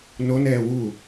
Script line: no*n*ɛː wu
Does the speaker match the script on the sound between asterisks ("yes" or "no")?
yes